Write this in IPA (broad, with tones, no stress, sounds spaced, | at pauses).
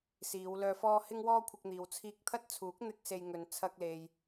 s iː˨˧ w l œː˧ f ɔː˥ h ɪ˥ ŋ w ɔː˥ kʷʰ ɪ˧ k̚ n̪ iː˨ w t͡sʰ iː˧ k̚ t̪ʰ ɐ˥ t̚ t͡sʰ uː˨˥ k̚ n̪ ɪ˥ k̚ s e˧ j ŋ ɵ˨ n t͡sʰ ɐ˧ k̚ l e˨ j